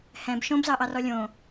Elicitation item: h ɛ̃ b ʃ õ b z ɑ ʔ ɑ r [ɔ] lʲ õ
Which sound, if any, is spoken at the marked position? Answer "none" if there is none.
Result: ɔ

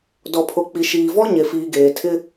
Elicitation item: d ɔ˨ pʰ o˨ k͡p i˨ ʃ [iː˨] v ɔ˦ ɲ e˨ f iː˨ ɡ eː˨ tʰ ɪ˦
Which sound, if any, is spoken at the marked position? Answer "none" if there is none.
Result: iː˨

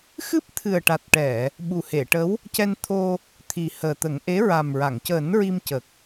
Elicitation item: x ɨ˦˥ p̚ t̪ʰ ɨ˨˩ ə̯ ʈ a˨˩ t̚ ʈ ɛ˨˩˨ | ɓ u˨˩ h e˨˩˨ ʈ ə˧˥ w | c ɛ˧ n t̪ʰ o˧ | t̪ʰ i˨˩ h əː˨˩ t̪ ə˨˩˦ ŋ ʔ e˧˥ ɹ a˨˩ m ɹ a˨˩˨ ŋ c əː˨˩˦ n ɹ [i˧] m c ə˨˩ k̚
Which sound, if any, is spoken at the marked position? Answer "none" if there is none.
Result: i˧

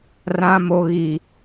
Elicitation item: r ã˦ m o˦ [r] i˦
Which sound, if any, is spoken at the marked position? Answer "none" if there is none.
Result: ɣ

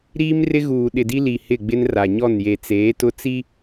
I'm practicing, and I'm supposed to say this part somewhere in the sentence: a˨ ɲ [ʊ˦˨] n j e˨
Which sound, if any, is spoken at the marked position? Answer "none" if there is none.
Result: ɔ˦˨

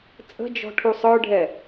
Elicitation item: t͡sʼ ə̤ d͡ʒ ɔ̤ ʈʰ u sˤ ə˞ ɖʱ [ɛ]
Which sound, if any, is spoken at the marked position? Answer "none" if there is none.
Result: ɛ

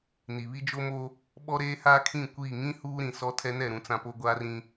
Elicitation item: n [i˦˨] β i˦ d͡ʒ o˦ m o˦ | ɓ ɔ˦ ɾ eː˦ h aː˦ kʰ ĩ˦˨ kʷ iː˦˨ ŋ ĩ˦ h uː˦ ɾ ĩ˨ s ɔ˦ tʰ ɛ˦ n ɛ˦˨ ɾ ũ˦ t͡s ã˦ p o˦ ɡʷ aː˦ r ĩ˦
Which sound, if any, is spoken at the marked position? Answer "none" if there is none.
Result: i˨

